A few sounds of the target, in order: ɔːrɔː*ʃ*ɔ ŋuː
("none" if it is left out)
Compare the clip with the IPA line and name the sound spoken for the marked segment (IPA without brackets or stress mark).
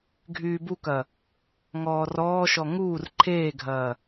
ʃ